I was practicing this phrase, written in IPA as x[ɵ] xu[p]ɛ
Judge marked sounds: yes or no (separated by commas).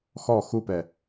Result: no, yes